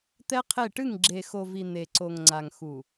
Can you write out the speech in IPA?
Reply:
t̪ɛ˦qʰe˦˨ ʈɨ˦˨ŋɡ͡ǁe˨xo˨vi˨ n̪e˨ǀo˨ŋŋ͡ǀa˨ŋ xu˨

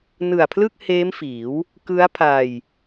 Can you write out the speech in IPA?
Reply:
nɯ˨˩a̯pʰlɯ˥˩k̚heː˦˥m fiː˩˦w | kɯ˦˥a̯pʰa˧j

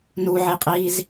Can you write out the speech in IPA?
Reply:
nuʕiqʼiːz

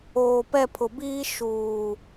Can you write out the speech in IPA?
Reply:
oː˨pɛ˦˨pʰʊ˨biː˦ ʃuː˨

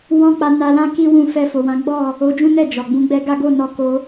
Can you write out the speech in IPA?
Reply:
wɔ̃˦ k͡pa˧na˧lã˦ ki˦wũ˦˨ fɛ˧ fo˨wã˨˦ɡ͡bɔ˦˨ | o˧d͡ʒũ˦nɛ˦˨ d͡ʒɔ˨ɡ͡bũ˧ɡ͡bɛ˦ ɡa˦ ɡo˦˨nɔ˧ ko˧

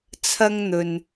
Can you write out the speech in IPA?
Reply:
t͡sʰɐ˥ŋn̪ɵ˨n

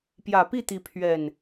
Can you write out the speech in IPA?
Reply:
pjä˨˩pi˥˨t̪i˨˦ pʰɥɛ˨˩n

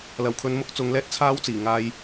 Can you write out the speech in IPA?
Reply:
lɐ˨˩wkʰɵ˨˧nmʊ˨˥k̚ t͡sʊ˨˧ŋ lɛː˥t̚t͡sʰaː˥wt͡siː˨˩ ŋaː˧j

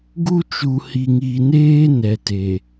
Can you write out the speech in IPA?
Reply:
ɡu˦t͡ʃu˨ hi˨ŋi˨neː˦ nɛ˨te˨

